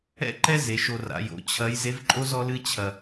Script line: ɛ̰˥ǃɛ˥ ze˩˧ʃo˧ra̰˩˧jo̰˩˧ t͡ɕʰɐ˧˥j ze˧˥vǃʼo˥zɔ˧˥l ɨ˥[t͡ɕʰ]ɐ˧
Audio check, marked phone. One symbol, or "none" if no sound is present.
t͡ɕʰ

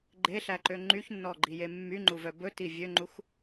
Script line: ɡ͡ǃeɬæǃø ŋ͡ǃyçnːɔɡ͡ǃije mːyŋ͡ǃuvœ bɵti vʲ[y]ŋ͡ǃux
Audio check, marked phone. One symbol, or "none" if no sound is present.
ø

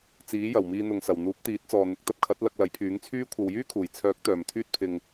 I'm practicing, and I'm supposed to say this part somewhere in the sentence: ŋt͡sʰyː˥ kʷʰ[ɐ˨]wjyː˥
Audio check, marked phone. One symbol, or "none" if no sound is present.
ɐ˨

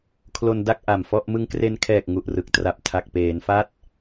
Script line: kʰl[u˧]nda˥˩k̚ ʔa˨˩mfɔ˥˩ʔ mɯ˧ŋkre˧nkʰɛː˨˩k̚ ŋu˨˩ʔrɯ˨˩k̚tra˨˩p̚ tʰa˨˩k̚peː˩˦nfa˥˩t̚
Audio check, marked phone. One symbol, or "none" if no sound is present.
o˧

